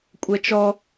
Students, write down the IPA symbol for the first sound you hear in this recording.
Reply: kʷʼ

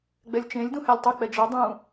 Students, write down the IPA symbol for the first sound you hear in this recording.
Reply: ɡ͡b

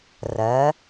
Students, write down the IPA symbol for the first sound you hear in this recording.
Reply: r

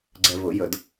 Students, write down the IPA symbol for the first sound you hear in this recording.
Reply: ɡ͡ǀ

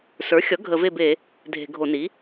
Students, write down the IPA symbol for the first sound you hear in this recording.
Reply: s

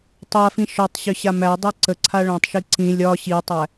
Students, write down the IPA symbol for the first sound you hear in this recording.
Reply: tˤ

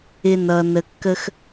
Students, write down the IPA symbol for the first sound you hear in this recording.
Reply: ɪ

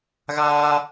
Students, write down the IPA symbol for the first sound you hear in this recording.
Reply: ɣ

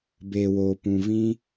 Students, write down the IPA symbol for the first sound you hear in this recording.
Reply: b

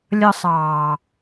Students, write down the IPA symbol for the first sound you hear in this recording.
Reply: lʲ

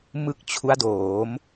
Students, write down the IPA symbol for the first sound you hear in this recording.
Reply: m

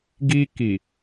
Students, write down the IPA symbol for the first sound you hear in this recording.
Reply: ɡ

